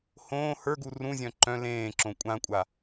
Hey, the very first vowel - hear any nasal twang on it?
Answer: yes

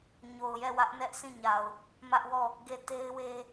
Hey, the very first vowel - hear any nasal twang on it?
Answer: no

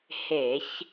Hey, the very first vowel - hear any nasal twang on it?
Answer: no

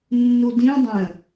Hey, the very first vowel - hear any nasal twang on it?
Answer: no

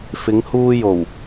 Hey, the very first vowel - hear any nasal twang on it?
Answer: no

